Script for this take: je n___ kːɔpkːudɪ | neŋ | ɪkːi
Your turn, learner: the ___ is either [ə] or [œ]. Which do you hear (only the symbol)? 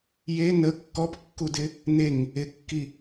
ə